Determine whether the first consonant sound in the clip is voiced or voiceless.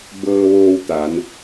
voiced